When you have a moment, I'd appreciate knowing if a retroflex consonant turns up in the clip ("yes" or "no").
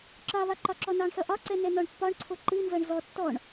yes